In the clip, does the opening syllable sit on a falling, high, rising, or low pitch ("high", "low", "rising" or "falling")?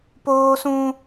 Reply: high